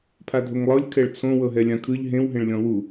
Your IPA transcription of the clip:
pʰ a dʱ o ŋ lˠ ɤ lʲ kʰ ɛ ɭ t͡sʰ õ w ɤ ɦ ɛ lʲ ã kʰ ɯ ʎ ɦ ẽ w ɦ ẽ ɭ lʲ ɔ̃ w u

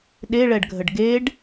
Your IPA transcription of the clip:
ɗ e ɭ ɛ ɖ ɡʱ ə ɖ ɡ e ɖ

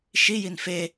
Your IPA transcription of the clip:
ʃ i j i n f e

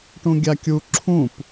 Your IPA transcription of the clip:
ʈ ũ ɡʲ a kʲ u ǁʰ ũ p

